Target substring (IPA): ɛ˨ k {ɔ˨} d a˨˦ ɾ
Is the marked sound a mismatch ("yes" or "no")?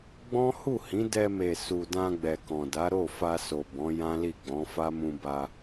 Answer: yes